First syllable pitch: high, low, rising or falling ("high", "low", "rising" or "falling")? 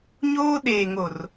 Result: high